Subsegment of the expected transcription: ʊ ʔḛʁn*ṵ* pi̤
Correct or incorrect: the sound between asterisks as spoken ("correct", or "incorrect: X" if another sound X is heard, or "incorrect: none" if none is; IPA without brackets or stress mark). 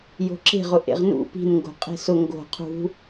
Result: correct